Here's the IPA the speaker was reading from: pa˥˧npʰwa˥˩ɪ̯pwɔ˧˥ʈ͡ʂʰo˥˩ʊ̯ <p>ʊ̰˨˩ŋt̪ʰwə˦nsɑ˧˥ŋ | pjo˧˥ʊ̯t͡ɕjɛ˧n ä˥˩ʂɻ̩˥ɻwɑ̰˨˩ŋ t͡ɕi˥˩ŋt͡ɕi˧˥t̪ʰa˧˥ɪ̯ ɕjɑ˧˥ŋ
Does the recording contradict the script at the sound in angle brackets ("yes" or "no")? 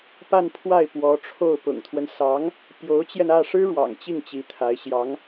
no